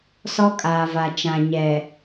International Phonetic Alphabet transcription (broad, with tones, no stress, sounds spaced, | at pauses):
s ɔ˦ kʼ aː˨ v a˨ t͡ʃ ã˨ ɲ ɛ˨